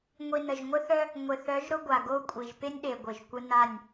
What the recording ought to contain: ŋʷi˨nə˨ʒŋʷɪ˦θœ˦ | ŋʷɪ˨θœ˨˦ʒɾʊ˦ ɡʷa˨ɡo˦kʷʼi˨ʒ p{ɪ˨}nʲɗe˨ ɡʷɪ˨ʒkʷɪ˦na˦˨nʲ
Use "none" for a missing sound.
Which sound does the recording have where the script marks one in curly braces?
ɪ˦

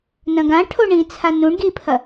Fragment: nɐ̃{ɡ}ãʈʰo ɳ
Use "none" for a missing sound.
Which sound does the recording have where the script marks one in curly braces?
ɡ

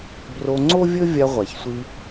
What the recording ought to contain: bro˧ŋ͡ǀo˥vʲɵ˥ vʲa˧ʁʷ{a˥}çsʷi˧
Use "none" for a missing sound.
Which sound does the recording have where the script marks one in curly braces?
a˩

